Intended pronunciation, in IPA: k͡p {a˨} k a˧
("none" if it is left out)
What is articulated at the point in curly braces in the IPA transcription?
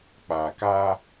a˨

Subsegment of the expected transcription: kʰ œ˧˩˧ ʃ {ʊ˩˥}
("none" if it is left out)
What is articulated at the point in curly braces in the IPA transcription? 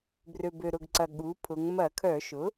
ʊ˩˥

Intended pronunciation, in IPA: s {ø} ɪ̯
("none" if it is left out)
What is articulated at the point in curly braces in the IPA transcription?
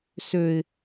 ø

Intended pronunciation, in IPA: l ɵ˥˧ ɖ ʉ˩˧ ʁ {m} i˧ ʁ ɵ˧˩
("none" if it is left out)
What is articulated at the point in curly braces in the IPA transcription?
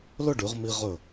m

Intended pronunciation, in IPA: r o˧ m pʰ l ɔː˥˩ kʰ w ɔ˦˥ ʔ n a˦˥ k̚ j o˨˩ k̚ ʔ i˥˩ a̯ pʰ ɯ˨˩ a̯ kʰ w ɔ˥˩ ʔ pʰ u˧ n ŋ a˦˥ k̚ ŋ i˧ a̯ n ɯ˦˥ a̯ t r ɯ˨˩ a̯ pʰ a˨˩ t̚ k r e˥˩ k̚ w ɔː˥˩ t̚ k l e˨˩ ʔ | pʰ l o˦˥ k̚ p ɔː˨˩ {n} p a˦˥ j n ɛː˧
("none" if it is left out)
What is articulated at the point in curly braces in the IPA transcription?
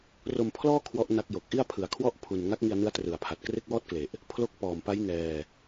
m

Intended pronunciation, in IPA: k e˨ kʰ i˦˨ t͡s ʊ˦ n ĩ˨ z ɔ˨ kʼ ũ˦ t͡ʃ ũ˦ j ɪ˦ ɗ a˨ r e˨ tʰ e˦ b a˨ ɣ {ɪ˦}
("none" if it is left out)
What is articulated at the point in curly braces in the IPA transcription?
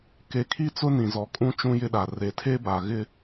ɪ˦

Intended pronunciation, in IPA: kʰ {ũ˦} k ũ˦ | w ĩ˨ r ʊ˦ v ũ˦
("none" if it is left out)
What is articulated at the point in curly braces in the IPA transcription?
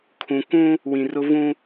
ũ˨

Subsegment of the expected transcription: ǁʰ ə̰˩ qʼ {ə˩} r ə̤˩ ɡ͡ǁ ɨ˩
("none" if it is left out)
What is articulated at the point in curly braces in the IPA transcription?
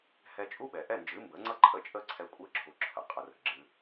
ə˩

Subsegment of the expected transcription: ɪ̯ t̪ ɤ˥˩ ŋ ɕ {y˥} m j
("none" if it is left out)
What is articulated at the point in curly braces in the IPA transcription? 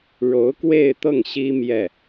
i˥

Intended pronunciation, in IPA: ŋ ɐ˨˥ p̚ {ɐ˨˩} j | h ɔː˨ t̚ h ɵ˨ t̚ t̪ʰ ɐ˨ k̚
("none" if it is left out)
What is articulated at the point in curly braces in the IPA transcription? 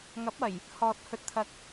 ɐ˨˩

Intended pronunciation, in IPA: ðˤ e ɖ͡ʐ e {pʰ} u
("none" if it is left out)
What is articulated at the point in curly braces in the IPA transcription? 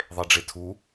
tʰ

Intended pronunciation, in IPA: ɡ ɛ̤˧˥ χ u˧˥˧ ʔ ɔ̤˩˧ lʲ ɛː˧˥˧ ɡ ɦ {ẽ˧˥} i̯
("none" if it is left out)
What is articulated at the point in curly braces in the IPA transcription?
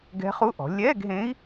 ẽ˧˥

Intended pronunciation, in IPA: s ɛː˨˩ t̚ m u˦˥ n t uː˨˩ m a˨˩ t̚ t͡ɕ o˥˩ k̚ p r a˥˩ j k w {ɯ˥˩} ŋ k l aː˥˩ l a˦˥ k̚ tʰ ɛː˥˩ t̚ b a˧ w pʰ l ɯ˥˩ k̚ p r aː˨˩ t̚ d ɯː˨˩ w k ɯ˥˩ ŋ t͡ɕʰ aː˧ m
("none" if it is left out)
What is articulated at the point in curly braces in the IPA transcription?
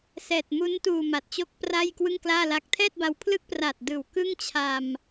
ɯ˥˩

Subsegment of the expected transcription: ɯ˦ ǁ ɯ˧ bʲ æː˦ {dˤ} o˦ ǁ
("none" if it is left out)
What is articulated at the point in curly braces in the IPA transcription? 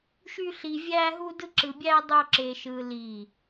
dˤ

